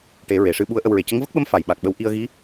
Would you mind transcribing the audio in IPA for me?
ʈ e˨˩˦ ɹ e˨˩˨ ʂ ɨ˧ ɓ u˧˥ ə̯ ʔ ə˧ w ɹ e˨˩ c ə˧˥ ŋ v ə˦˥ k̚ ɓ ə˧˥ m f a˨˩˨ j ɓ a˨˩ k̚ ɓ ə˧ w ʔ i˧ ə̯ ɣ i˧˥

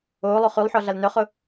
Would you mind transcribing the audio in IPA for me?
oː lˠ o χ y lˠ ħ ɔ ɮ a l n œ χ ʊ

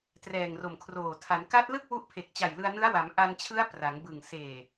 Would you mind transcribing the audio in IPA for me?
t r ɛː˨˩ ŋ r o˨˩ m kʰ r oː˨˩ tʰ a˩˦ n k a˦˥ t̚ l ɯ˥˩ k̚ w u˦˥ ʔ pʰ e˨˩ k̚ t͡ɕ a˨˩ j l ɯ˧ a̯ n ɯ˦˥ a̯ w a˩˦ m ʔ a˧ n t͡ɕʰ ɯ˦˥ a̯ p r a˩˦ ŋ b ɯ˨˩ ŋ s eː˨˩

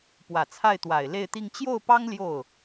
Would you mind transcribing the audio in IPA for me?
p w ä˨˩ t͡sʰ a˥˩ ɪ̯ t̪ w a˨˩ ɪ̯ l e˥˧ ɪ̯ t̪ i˥˧ ŋ t͡ɕ j o˥˩ ʊ̯ p ɑ˥ ŋ l j o˥˩ ʊ̯

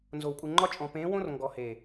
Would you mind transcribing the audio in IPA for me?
n z o˨ w kʼ u˨ ŋ͡ǃ ɒ˦ t͡ʃʼ ɔ̃˨ p ẽː˨˦ w õ˦ r ŋ ɡ ɔ˨ h e˨

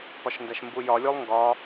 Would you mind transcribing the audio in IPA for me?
p ɒ ʃ n d æ ʃ m b u j ɒ lʲ o lˠ ŋ ɡ ɒ

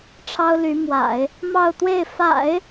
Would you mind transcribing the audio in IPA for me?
ʈ͡ʂʰ ɑ˥ ʊ̯ l y˧˥ m w a̰˨˩˦ ɪ̯ | m ɑ˥˧ ʊ̯ t̪ w e˥˩ ɪ̯ f a̰˨˩˦ ɪ̯

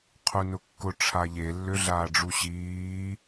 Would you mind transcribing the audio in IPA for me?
qʰ u n ʊ kː ʊ ʈ͡ʂʰ a ʎ e lː ʏ ɮ aː ɖ͡ʐ u ɕ iː

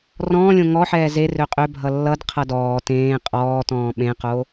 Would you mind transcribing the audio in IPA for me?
r ɔ̃ː lʲ õ ŋ ɔ ħ ɛː z e r ø qʼ ø bʱ ʌ lː ʌ d qʰ ʌ d ɔː t ẽː qʼ ɔː t ɔ̃ː ɓ ẽ q o

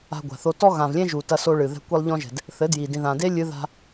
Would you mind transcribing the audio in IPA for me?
a̤˧ ɡʷ a̤˨ θ o˧ t ɔ˦ ɣ ã˨ v lʲ ẽ˦ ʒ u˨ t ɐ˧ s o˧ ɭ ɨ˨ ð ɛ̤˧ kʷ e˧ lˠ ʎ ɔ̃˧ ʒ ɛ̤˨ d | θ ɘ˨˦ d j i˨ d ĩ˨ ð ã˨ d e˦ lʲ ɨ˧ ð a̤˧

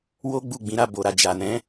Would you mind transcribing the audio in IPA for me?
w o˦ ɡ͡b u˦˨ ɡ͡b ĩ˨˦ ɾ a˦˨ b o˨ ɾ a˨ d͡ʒ a˨ n ɛ̃˨˦

